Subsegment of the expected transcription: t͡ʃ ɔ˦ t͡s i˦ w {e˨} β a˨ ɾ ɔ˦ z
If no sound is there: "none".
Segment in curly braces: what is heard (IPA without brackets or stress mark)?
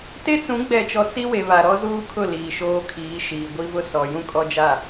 e˨